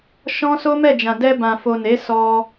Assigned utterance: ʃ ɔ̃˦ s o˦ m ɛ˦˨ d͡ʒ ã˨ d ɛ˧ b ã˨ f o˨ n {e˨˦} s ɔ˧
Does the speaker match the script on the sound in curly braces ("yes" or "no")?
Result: yes